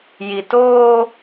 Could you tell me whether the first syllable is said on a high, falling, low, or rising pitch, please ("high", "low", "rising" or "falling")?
low